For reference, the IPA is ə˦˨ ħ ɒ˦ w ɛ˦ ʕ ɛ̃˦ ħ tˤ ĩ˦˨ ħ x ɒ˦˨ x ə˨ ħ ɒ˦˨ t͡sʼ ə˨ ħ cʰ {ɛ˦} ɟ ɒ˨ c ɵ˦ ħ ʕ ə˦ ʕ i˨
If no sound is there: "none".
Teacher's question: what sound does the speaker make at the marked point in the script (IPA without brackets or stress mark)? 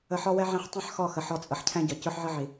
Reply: ɛ̃˦